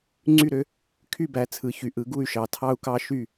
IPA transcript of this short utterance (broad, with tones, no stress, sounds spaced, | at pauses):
ŋ͡ǀ y˥˨ ɾ ø˦ | kʰ y˥˨ b æ˩˧ t͡sʰ ɯ˩˥ ç y˩˧ ʔ ɯ˩˥ ɡ u˥˨ y̯ ʃ ɑ˩˥ tʰ ɑ˦ u̯ k ɑ˦ ʃ y˥˨